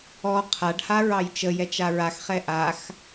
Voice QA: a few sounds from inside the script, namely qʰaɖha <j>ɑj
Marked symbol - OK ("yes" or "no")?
no